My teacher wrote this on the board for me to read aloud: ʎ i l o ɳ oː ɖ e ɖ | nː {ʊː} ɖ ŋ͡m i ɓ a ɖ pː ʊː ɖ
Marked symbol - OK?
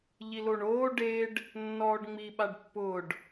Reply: no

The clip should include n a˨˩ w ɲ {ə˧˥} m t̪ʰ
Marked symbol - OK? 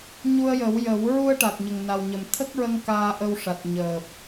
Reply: no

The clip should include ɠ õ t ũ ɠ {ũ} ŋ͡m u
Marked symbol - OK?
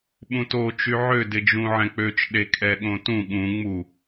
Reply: yes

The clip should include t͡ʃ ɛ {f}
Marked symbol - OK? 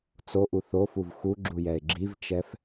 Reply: yes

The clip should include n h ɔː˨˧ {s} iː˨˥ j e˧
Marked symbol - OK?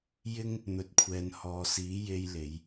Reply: yes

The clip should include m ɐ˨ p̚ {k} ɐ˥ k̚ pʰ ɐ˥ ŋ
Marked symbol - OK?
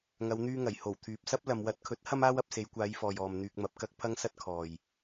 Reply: yes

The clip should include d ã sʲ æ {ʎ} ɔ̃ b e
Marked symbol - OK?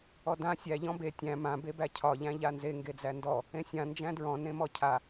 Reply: yes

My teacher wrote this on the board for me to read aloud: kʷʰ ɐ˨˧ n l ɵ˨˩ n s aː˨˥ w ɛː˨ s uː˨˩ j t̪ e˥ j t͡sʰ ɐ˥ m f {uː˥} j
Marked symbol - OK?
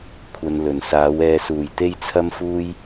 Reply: yes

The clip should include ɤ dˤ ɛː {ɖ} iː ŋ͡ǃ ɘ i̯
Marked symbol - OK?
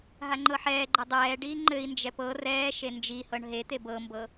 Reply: yes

